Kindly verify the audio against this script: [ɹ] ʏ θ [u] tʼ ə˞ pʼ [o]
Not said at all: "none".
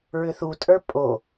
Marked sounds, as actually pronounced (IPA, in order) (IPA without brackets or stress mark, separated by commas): ɹ, u, o